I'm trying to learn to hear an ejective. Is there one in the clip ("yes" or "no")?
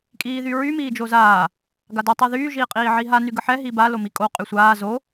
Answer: yes